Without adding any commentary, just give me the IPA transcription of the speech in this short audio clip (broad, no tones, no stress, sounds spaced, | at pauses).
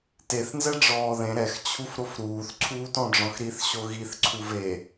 t e θ n z ɛ ɖ͡ʐ ɔː ð ẽ ɾ ɛ x t͡ɕʰ u f ɾ o f ɾ uː θ ǀʰ uː t ɔ̃ ɖ͡ʐ ɔ̃ x ɾ i θ ɕ o ɣ i θ ǀʰ u v e